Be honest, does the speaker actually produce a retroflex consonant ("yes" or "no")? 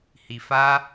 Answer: no